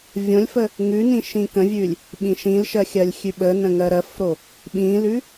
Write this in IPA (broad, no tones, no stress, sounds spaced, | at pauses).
vʲ õ lʲ f ə | ŋ ʉ n ĩ ʃ ĩ k ə̃ vʲ ʉ lʲ | ɓ ĩ ʃ ĩ l ʃ ɜ xʲ ɜ lʲ xʲ ʉ ɓ ə n ə̃ ŋ ɜ ɾ ɜ f ɾ o | ɓ ĩ l ʉ